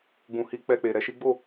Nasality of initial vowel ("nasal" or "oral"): nasal